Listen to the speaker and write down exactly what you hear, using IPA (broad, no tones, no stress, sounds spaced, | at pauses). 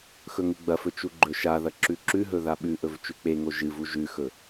x ɵ ŋ u ɡ͡b ɐ f ɵ t͡ʃ u ɡ͡ǃ ɵ ʃ a ð ɐ ǁ ʉ ǁ ʉ ɦ ɵ ð a ɓ ʉ ʔ ɵ v t͡ʃ ʉ k͡p e ŋ o ʒ ɨ v u ʒ ʉ x ɵ